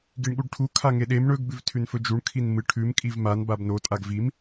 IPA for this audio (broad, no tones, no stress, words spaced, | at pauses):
ɡiɳɠuɖʈʰu kʰaŋeɗem ɳɵɡ bʉvtʰʉnfɵd͡ʒuɳ kʰinmɨ ʈʰʉm kʼivman babno tʼaɡvim